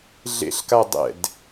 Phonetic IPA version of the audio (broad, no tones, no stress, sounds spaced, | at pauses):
ɮ ḛ ɬ k a dˤ ɛ̰ d